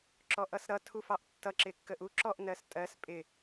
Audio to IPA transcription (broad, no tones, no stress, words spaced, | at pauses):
ǁɔʔʌsɾʌ tʰufɑʔtːʌ ǁɪkːəʔu ǁɔʔ nɜstʼɜs pʼɪ